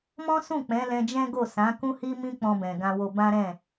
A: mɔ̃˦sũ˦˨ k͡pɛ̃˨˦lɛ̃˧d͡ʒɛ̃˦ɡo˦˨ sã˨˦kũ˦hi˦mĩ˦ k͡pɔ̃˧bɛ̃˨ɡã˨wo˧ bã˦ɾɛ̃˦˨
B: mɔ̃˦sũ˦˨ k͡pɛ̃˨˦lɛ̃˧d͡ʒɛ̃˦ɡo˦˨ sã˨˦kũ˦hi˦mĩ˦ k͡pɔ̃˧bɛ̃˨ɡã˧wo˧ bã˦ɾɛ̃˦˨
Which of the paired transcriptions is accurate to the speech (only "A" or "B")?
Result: B